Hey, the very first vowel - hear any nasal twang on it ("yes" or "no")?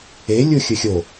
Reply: no